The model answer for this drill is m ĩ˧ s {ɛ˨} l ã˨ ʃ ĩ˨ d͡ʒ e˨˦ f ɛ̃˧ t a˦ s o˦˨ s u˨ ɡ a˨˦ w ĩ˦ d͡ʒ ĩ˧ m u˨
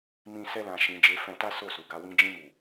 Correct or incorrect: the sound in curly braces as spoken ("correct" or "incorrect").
incorrect